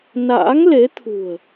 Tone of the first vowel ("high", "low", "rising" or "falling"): rising